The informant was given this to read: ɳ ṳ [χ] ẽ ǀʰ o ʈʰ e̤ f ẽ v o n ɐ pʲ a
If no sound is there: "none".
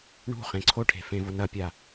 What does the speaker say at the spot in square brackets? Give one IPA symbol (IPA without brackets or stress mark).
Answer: χ